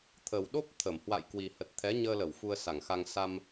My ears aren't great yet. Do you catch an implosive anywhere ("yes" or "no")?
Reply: yes